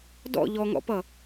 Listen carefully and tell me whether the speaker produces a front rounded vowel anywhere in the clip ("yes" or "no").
no